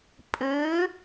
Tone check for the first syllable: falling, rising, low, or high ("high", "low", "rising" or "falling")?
rising